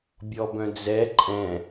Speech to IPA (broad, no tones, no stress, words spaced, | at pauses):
bʲɔbœ̃d͡zɛ ǃʼɛ̃